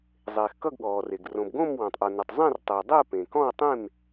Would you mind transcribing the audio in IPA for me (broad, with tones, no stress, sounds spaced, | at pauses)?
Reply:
zˤ eː˩ x k ʌ˥˨ ɡ ɠ ɔː˩ r e˩ ɡ r õ˩ b ɡ õ˥˨ m w ɔ̃˩ tˤ ʔ o˩ n ɘ˩ tˤ zˤ ẽ˥˨ r tˤ ɘː˩ dˤ ɘː˥˨ p ẽ˩ k ɔ̃˥˨ w tˤ ẽ˥˨ m